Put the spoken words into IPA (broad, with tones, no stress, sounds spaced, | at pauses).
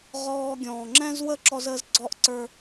ʁ ɔː˦ ɡʲ ɔ̃ː˨ ŋ͡ǁ ɛ̃˦ z w ə˦ ǁ ɔ˦ z əː˦ z ɡ͡ǀ ɔː˦ ʔ ǀ ə˞˦